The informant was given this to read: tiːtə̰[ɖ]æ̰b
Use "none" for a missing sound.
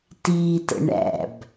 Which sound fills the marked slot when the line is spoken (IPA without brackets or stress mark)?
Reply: ɳ